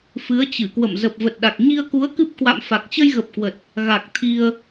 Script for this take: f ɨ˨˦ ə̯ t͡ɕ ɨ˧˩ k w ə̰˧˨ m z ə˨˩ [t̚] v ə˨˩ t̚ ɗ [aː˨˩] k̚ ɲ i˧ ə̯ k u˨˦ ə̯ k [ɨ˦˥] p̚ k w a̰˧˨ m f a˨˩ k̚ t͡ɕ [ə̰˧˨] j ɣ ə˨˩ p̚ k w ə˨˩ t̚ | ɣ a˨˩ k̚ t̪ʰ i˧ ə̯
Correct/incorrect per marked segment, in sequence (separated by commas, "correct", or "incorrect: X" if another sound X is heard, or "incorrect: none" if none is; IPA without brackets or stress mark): incorrect: p̚, incorrect: a˨˩, correct, incorrect: ə˧